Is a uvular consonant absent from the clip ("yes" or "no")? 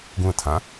yes